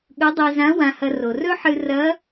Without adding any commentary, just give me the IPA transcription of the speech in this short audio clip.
ɠɵ˧˥dˤe˧zã˧˥ wã˧hɐ˧ro˩ rɵ˥ħɨ˧rɐ˧˥

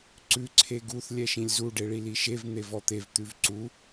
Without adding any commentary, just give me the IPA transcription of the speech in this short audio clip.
ǀʉ ǀʰeɡuθ lʲɛʃĩlʲzu ɖeɭiliʃev n̪evɔt̪ev t̪ʉvǀu

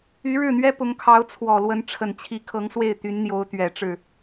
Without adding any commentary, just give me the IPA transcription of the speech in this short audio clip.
y˧˥ɻɻ̩˥˩n̪ɥɛ˥ pʊ˧˥ŋkʰɑ˧˥ʊ̯t͡sʰwɔ˨˩lwə˧˥n ʈ͡ʂʰə˨˩nt͡ɕʰi˧˥kʰɤ˧˥ŋ swe˥˩ɪ̯t̪y˧˥nn̪jo˧˥ʊ̯ t̪ɥɛ˨˩ʈ͡ʂɻ̩˥˩

